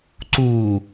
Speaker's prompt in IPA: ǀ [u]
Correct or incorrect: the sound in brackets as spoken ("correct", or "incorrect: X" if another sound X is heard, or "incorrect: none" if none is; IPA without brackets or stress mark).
correct